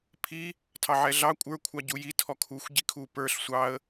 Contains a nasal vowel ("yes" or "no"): no